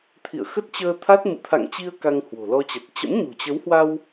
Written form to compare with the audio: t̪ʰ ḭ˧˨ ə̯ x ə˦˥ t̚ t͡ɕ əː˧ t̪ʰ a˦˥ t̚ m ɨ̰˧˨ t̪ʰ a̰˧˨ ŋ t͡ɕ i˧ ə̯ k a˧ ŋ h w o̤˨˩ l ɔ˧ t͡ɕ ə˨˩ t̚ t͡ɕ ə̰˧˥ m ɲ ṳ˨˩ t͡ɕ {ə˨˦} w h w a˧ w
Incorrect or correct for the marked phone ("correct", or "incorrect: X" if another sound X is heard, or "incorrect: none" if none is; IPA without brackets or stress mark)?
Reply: correct